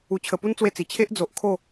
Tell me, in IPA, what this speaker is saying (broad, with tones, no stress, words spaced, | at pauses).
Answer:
u˨˩t͡ɕʰə˨˩pu˦n t͡swe˥˧t͡si˨˩ t͡ɕʰe˦ʔd͡zo˨ʔ kʰo˥˧